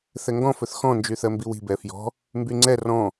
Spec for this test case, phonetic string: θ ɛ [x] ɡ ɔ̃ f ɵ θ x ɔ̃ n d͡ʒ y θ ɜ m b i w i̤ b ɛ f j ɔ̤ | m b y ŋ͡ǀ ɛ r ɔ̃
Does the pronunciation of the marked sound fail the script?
yes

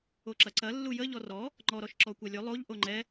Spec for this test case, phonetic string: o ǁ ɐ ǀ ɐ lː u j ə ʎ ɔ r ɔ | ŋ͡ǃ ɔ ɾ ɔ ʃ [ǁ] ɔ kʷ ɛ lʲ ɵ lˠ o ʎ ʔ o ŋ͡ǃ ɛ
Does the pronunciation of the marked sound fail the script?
no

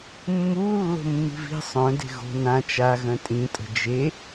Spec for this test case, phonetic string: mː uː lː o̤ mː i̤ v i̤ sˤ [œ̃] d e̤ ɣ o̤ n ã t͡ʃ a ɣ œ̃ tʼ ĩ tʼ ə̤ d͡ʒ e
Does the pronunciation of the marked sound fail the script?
no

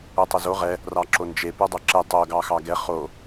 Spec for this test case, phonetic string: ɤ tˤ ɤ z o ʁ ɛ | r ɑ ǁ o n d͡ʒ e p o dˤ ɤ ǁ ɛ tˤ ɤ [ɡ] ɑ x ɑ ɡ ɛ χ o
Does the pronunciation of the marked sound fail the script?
no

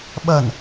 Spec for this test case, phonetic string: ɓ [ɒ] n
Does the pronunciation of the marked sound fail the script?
yes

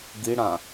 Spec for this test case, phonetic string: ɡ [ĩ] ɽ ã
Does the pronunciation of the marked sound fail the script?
yes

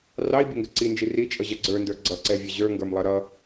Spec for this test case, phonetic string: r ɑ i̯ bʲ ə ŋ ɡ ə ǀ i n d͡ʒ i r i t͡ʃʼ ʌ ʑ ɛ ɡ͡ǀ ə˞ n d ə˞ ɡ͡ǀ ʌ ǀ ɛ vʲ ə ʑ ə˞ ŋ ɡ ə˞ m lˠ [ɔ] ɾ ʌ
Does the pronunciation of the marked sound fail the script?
yes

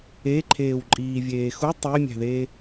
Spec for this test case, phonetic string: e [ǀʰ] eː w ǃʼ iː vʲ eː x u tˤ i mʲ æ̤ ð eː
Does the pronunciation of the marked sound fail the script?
yes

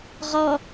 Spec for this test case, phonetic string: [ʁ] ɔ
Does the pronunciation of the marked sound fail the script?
no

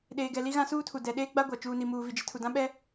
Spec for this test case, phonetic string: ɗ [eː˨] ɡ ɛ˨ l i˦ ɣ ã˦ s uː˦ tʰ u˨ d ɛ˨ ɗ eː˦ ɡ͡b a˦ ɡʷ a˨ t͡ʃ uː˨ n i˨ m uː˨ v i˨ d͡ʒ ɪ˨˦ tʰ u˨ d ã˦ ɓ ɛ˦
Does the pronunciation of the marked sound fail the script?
no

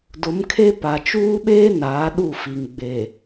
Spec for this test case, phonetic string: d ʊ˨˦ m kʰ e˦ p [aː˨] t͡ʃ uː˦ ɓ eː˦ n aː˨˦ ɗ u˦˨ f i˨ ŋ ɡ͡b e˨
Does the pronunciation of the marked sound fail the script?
yes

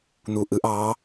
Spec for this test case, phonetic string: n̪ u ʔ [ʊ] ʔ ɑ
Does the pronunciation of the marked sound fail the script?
yes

